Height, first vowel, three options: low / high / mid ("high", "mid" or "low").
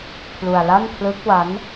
high